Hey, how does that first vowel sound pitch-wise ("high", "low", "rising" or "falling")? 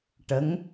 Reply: rising